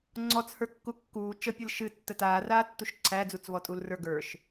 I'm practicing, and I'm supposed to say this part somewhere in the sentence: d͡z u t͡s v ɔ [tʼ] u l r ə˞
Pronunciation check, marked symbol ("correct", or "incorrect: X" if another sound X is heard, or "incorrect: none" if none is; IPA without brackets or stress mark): correct